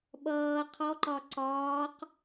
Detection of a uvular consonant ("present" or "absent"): present